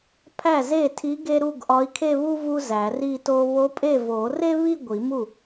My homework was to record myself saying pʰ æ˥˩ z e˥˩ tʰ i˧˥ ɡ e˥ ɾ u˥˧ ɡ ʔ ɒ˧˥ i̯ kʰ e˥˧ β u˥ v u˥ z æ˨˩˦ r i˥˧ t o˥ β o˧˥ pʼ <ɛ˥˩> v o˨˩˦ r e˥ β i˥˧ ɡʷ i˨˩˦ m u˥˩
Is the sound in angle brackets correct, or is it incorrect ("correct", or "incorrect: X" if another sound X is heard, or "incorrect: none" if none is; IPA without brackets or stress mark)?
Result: incorrect: e˥˩